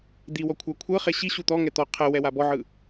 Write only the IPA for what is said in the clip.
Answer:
d̪ i w ɔ kʷʰ a kʷʰ ɤ χ e ɕ i ɕ u t̪ ɔ ŋ ɛ t̪ ɔ qʰ ɛ w ɛ w a b ɔ ʕ ɯ

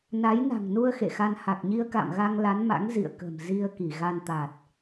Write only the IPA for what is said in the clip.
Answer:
n a˨˦ j n a̤˨˩ ŋ n u˧ ə̯ x ḛ˧˨ x a˧ n h a˨˩ k̚ ɲ i˧ ə̯ k a̰˧˨ m ɣ a˧ ŋ l a˨˦ n m a̰˧˥ ŋ z ḭ˧˨ ə̯ k ə̤˨˩ m z i˧ ə̯ k i˧˩ ɣ a˧ n t̪ a˨˩ t̚

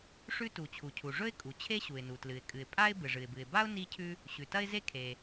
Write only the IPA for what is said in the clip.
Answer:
ʂ ʉ˥ t u˩ t͡ɕʰ u˩ cʰ u˩ ʐ ɵ˥ ɪ̯ kʼ u˩ t͡ɕʰ e˥ ɕ u˩ ɪ̯ n u˩ t l ɨ˩ ɪ̯ kʼ ɨ˩ ɪ̯ pʼ a˥ ɪ̯ b ɨ˩ ʐ ɨ˩ ɪ̯ b ɨ˩ ɪ̯ b a˥ ʊ̯ n i˥ cʰ ʉ˥ | ɕ ʉ˩ t ɐ˥ ɪ̯ z e˥ kʰ e˩

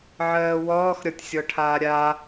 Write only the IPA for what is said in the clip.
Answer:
ʕ ɜː w ɔː x ɾʲ ɔ tʲ sʲ ɔ ʈʰ aː ɾʲ a

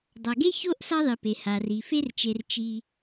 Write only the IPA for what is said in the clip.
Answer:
dˤ a˩ ɡ e˥ ç o˥ ʔ s a˦ ðˤ i˩ p e˩ h a˩ r i˩ f e˥ r t͡ʃ e˨ r t͡ʃ i˦

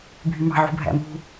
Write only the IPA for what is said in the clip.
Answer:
bʱ y m ɑ̤ ʕ ṳ bʱ æ̰ m ṳ

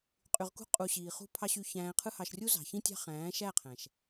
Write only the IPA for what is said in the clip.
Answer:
qʼ y˨ ʁ k ṳ˧ qʼ u˨ ɕ iː˨ χ ṳ˦ pʰ ɑ˦ ɕ y˧ ç æ̃ː˧ qʰ ɯ˦ h ɑ˧ ʃ rʲ u˦ z ɑ̤˨ ç ĩ˦ tʲ ɑ̤˦ χ æ̃ː˨˦ ʃ æ˦˨ qʰ æ̃˨ ʃ

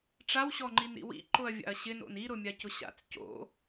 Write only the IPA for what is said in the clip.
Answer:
ʈ͡ʂ a w ɕ ɔ ŋ͡ǃ i n ɾ ḭ w ḭ ǃ ʊ ɐ̯ vʲ a̰ ɐ̯ ɕ ɪ n o̰ n i ɾ ʊ mʲ a c ʊ ɕ a̰ t͡s c o̰

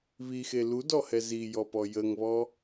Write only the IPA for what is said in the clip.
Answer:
β i x e l u d ɔ h ɛ z i j ɔ p ɔ j ə ŋ β ɔ

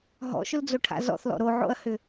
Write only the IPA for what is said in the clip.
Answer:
ɦ ɔ̰ ʃ ʊ l d͡z o ʈʰ a̰ z ɔ̰ θ l ɔ̰ ɾ o ʕ o̰ ɐ̯ h ʏ

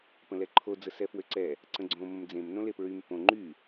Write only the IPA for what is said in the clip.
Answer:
p ə̃ l ɛ ǃʰ o d͡z ə s ɛ f w ø ǀ ɛ | ǀ ə̃ ɡ͡ǀ õ m ə̃ m d͡z ẽ m n õ l e p ɹ y m p õ ŋ͡ǃ y

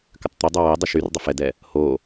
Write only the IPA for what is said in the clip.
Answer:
k ʏ tˤ t̪ ʏ dˤ ø w ɛ dˤ ə ʃ y r dˤ ʏ f ɛ d ɛ | h o

